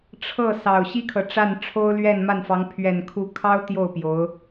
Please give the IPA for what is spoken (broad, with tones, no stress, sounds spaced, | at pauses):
ʈ͡ʂʰ ɤ˥˩ s ɑ˨˩ ʊ̯ ɕ i˥ kʰ ɤ˨ ʈ͡ʂ a˥˩ n ʈ͡ʂʰ o˥ ʊ̯ l ɥ ɛ˥˧ n m a˥˩ n f ɑ˧˥ ŋ pʰ ɥ ɛ˨˩ n kʰ u˧˥ kʰ ɑ˥ ʊ̯ t̪ j o˥˩ ʊ̯ p j o˧˥ ʊ̯